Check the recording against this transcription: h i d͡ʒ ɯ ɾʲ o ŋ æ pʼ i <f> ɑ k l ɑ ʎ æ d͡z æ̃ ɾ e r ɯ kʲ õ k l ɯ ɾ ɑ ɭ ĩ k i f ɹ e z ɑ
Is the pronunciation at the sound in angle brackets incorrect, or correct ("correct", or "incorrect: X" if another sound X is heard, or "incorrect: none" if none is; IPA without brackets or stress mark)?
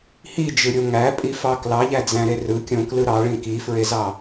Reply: correct